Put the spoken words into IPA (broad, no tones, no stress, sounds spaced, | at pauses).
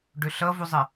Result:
ɖ ø ɬ ʌ v u zˤ ɛ